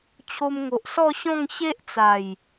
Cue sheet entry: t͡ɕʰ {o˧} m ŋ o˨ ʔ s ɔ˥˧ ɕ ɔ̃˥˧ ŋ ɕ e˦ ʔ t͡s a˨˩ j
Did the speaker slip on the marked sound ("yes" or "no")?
no